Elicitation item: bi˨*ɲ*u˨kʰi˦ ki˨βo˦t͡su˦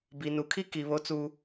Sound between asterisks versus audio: incorrect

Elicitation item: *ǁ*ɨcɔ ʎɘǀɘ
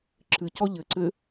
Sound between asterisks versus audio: correct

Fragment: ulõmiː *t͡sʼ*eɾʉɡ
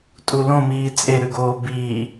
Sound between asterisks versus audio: correct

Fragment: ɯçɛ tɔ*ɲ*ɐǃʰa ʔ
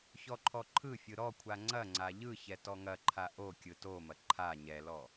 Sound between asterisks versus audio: incorrect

